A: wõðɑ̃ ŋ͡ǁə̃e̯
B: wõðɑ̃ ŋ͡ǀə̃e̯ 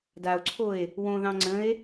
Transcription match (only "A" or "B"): B